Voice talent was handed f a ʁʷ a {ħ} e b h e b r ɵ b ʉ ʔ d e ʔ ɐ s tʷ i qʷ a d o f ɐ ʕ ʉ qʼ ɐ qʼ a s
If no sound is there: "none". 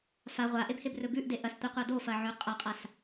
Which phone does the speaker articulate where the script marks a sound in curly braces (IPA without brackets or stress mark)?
ʔ